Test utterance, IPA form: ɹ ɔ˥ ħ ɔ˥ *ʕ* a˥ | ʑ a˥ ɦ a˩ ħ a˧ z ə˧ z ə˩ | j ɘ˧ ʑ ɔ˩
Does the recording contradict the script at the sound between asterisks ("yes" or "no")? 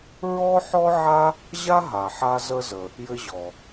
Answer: no